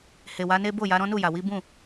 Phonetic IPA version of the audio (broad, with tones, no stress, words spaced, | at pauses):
he˨wa˨˦ne˦ bo˦˨ja˨˦ ɾɔ̃˦nu˦˨ja˨ wi˨˦bũ˦˨